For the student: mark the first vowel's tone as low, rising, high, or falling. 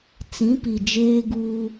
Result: rising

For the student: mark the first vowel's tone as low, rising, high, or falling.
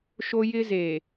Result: high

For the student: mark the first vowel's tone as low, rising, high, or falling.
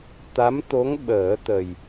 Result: rising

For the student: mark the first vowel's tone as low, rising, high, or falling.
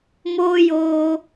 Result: high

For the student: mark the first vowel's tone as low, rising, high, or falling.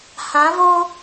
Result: rising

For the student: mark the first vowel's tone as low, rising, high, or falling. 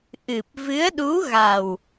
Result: low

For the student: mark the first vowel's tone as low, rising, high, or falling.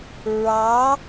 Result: rising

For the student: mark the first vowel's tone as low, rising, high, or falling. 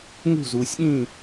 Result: falling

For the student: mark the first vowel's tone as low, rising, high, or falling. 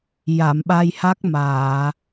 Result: low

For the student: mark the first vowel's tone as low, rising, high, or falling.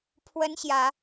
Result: high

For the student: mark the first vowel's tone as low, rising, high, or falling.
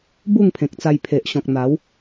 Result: falling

